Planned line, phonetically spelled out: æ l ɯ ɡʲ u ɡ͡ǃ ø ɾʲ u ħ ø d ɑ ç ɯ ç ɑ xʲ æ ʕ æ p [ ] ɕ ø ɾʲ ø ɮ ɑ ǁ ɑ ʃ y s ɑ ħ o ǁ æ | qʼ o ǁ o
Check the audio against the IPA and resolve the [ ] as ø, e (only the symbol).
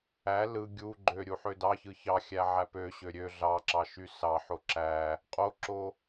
ø